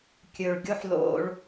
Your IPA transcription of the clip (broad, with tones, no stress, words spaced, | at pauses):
kʲɵ˩ɭ ɡʲo˥ħlo̰˧ɭ